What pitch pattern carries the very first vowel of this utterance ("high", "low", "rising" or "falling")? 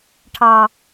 high